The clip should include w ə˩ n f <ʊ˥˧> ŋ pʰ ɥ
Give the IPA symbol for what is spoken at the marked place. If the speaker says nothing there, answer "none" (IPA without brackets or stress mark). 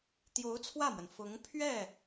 ʊ˧˥